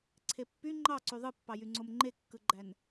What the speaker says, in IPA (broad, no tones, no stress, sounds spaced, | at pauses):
ǀʰ e pː y ŋ͡ǃ ɑ ǀ y ðˤ ɯ pː ɑ j y ŋ͡ǀ o m ŋ͡ǃ e kː ɯ ɡ͡ǃ æ n